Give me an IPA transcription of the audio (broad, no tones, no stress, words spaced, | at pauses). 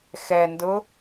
xɛndʊ